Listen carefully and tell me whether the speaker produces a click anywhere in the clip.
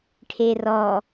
no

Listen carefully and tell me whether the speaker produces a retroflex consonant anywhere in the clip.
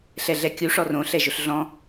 yes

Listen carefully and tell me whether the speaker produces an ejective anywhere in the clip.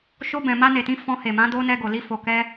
no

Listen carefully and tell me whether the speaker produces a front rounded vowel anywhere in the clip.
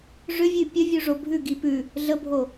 yes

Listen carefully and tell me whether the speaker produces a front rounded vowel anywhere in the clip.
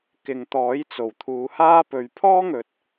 no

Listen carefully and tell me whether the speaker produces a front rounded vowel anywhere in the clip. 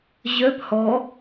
yes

